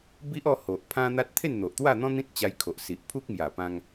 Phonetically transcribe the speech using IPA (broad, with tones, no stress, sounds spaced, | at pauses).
b i˦ ʔ ɔ˥˧ h o˨ ʔ pʰ ã˦ n̪ a˦ t̚ t̪ʰ e˥˧ n n̪ o˨ ʔ t̪ w a˥˧ n̪ ɔ̃˦ n̪ ĩ˦ t̚ t͡ɕ a˧ j kʰ o˨ ʔ s i˨ ʔ pʰ u˦ k̚ m j a˨˩ p ã˧ ŋ